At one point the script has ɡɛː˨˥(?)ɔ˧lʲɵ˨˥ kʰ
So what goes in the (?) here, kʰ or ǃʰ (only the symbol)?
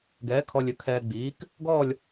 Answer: kʰ